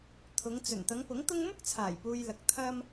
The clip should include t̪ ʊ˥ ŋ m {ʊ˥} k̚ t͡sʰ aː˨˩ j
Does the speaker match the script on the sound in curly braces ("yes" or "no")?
yes